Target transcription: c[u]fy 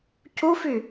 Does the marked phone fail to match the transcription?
no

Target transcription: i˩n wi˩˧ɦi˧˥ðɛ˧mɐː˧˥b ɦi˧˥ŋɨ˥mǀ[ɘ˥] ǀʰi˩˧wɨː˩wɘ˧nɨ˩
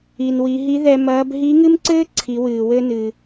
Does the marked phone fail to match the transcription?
yes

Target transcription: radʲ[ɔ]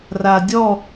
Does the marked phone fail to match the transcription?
no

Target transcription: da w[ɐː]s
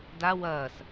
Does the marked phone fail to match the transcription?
no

